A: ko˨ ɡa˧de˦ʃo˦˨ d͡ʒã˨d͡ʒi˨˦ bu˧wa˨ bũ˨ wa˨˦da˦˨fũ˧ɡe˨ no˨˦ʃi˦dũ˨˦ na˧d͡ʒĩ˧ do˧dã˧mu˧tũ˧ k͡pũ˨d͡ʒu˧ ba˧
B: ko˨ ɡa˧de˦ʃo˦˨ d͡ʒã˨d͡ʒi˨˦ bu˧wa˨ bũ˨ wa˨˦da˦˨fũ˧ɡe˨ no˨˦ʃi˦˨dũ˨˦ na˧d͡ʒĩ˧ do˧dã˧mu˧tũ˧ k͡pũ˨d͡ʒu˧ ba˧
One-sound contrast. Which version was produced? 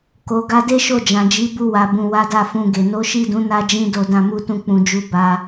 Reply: B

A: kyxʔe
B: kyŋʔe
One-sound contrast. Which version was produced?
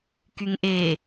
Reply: B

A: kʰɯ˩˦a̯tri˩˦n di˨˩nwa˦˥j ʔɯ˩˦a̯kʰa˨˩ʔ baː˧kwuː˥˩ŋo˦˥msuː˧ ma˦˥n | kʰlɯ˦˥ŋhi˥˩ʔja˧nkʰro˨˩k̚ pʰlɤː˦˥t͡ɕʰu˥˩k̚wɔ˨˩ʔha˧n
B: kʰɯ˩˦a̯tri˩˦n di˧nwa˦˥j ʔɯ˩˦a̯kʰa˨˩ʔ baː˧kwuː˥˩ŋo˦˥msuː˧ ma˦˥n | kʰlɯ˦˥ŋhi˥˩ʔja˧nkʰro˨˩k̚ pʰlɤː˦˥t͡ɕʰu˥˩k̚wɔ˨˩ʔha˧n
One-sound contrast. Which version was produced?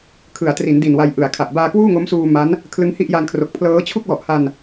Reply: A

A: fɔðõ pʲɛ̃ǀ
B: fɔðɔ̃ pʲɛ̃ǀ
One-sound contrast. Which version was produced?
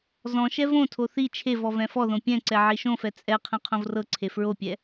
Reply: A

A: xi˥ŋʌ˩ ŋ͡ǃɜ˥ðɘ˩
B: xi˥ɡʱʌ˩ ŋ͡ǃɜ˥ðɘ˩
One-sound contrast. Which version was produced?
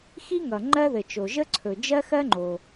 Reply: A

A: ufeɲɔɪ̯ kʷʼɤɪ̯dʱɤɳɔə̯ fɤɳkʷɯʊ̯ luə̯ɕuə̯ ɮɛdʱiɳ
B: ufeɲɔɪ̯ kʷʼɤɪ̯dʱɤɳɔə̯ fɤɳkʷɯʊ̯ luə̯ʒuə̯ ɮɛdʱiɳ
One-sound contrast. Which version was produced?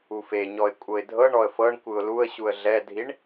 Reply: A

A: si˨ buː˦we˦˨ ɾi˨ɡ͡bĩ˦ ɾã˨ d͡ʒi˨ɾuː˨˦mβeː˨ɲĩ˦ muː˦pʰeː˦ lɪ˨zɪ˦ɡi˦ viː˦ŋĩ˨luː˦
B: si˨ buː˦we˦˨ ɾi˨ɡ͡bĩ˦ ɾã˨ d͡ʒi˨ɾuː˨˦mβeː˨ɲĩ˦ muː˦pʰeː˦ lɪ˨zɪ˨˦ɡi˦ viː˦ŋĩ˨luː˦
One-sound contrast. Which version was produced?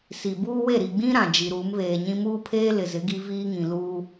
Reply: B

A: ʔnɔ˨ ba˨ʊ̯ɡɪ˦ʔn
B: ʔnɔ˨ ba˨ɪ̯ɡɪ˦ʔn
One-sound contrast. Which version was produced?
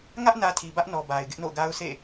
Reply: B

